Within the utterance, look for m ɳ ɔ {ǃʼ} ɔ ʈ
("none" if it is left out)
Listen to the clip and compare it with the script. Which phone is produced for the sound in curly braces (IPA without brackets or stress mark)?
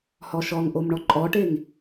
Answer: ǃʼ